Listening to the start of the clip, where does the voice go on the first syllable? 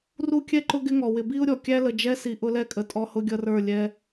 high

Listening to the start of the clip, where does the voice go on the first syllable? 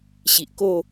low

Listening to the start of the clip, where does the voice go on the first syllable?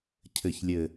low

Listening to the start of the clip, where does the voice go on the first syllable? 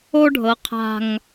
high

